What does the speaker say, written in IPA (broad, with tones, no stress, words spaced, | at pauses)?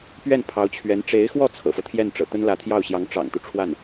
pɥɛ˥˩npʰɑ˧˥ʊ̯t͡ɕʰɥɛ˧˥n ʈ͡ʂe˧˥ɪ̯xwɔ˥˩ t͡sʰɤ̰˨˩fɤ˦t̪ʰjɛ˥˩nʈ͡ʂɤ̰˨˩ t̪ə˥nlä˧˥t̪ʰjɑ˥˩ʊ̯ɕjɑ˧˥ŋ ʈ͡ʂɑ̰˨˩ŋt̪u˦ʈ͡ʂʰwa˥˩n